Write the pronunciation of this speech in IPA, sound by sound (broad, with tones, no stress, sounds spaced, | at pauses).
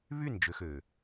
β y˦˨ n d͡ʒ ø˨ x øː˨